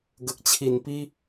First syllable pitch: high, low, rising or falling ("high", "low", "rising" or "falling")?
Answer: low